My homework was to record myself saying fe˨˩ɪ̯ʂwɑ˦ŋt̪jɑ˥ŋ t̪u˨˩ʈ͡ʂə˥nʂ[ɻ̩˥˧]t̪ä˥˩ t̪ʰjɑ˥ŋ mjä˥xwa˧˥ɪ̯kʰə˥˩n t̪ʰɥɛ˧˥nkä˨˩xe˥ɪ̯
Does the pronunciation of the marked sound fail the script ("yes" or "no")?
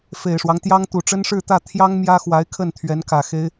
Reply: no